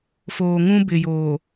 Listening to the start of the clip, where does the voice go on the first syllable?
low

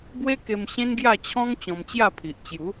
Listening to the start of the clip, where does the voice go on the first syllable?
high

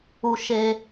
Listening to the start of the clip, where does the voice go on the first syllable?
low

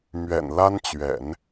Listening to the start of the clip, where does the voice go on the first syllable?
low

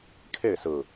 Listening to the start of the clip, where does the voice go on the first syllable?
falling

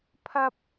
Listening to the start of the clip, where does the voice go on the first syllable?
high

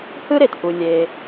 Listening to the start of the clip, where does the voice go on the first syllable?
high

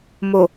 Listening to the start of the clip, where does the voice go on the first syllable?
low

